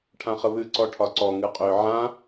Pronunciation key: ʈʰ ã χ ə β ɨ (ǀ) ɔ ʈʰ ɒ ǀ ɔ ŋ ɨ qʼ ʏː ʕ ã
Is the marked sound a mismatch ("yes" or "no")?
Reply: no